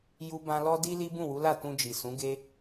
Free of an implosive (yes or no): yes